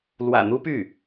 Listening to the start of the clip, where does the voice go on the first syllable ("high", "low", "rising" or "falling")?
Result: low